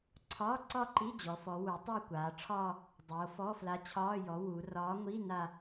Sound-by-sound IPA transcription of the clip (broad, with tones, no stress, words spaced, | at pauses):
ǀʰɒː˧˥˧ǀɒ˥˧ǃi˧˥˧ d͡ʑɔ˩˧fɔ˩˧ wu˩˧tˤa˥˧ kʷaː˩˧ʈ͡ʂʰɒː˥˧ | dˤoː˩˧fɔ˧˥˧fla˧˥ t͡ɕʰɒː˧˥˧ jɔ˩˧ wu˩˧rɒː˧˥ ŋʷi˧˥˧ na˥˧